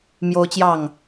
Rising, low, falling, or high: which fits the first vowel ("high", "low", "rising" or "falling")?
high